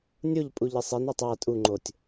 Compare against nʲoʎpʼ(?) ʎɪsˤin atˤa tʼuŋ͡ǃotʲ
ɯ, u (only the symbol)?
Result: u